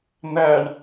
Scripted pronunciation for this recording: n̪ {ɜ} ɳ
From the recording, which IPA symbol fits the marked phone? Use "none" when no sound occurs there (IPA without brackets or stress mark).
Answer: æ